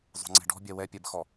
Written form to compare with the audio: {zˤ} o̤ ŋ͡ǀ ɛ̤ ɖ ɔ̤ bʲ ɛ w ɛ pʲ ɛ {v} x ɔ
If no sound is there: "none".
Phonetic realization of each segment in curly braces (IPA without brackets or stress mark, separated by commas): zˤ, b